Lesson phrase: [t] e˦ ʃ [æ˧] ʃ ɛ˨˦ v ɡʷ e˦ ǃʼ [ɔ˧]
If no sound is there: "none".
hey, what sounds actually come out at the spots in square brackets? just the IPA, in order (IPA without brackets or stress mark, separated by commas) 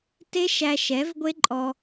t, æ˧, ɔ˧